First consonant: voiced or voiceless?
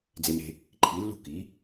voiced